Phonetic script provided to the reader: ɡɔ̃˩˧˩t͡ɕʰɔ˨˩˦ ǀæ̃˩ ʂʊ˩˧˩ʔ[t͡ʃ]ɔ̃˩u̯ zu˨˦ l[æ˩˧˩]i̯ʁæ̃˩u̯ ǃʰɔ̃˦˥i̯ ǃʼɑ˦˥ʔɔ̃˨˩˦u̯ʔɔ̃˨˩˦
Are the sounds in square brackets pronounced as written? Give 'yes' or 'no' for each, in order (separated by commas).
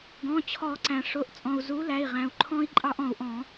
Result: no, yes